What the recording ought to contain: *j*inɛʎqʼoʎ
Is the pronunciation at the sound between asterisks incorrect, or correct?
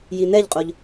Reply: correct